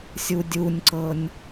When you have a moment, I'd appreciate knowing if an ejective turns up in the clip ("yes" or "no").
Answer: no